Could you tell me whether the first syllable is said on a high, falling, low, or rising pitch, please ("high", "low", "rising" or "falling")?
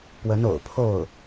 rising